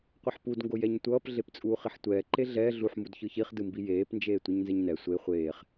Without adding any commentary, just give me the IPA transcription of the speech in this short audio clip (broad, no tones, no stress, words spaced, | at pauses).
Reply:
qʷeħpudŋɡo jɛɲtʷʌːp ɮept͡sʼuːχiħtʷɛː ǃeɮɛː ɮuħmud çɯçiχ dɯmbijeːpnd͡ʒeː tʷɯɲnzɛɲnɛ sʷe χʷeːχ